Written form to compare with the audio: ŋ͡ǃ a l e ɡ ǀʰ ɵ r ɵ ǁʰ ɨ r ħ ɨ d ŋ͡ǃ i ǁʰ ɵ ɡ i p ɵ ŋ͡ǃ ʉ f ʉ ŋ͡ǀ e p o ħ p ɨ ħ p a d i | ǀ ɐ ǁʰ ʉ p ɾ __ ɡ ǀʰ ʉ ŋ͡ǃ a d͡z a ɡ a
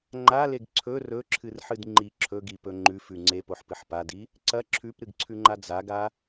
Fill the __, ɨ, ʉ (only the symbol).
ɨ